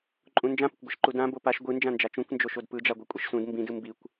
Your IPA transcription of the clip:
ǃʼ ũ n d͡ʒ ã p ɪ kʷ ɡʷ ɛ ʃ ǃ u d ã b o p a ʃ ɡʷ ɯ n d͡ʒ ã n d͡ʒ a t͡ʃ ũ kʷ n d͡ʒ o ʃ o d p ɯ d͡ʒ a ɡʷ ɯ kʷʼ i ʃ s ũ d m b ĩ d ɯ m b i kʷ

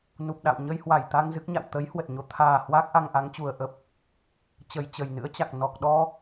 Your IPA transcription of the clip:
n u˨˩ p̚ ɗ a̰˧˨ w ɲ ə˧ j h w a˧˩ j t̪ a˧ ŋ z ɨ˦˥ k̚ ɲ a̰˧˨ w t̪ ə˨˦ j h w ə˨˩ t̚ ɲ o˨˦ t̪ʰ aː˨˩ h w aː˦˥ k̚ ʔ a˧ ŋ ʔ a˨˦ ŋ t͡ɕ u˨˩ ə̯ ʔ ə˦˥ p̚ | t͡ɕ ə˨˩ j t͡ɕ ə˨˩ j n ɨ̰˧˥ ə̯ t͡ɕ a˨˩ k̚ n ɔ˨˩ k̚ ɗ ɔ˧

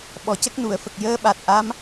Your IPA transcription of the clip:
ɓ ɔ˨˩ c ə˦˥ k̚ n u˨˩˨ ə̯ f ə˨˩ k̚ j əː˧˥ ɓ a˨˩ t̚ ʔ a˧˥ m

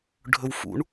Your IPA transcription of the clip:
ɖʱ ɵ w f ṵ ɳ

